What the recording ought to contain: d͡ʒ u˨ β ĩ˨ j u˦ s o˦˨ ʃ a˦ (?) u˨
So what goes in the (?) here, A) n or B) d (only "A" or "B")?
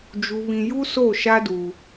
B